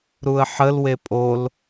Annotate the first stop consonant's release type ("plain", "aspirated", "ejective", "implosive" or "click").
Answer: ejective